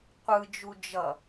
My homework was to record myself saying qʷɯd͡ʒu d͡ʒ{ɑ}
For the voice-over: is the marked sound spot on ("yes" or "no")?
no